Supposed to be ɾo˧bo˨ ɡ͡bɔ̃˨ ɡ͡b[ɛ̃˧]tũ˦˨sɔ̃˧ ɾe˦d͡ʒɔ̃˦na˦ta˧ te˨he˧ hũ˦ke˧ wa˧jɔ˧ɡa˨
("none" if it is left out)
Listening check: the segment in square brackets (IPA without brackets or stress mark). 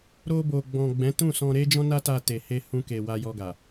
ɛ̃˨˦